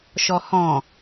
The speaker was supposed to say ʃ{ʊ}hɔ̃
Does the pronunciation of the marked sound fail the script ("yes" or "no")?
yes